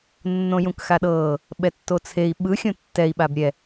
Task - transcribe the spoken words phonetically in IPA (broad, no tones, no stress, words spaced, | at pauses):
nːõjũkxaɗɤː | ɓɛtːot͡sʰei̯ ɓɯ xʲõtːɛi̯ ɓabɾʲɛ